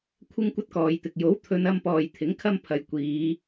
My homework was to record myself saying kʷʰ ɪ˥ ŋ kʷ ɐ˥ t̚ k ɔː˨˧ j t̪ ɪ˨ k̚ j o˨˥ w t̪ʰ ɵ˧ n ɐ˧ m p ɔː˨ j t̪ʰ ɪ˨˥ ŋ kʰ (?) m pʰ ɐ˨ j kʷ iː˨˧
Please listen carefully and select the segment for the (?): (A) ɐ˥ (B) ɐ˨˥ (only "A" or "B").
A